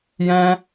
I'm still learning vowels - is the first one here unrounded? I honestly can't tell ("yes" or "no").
yes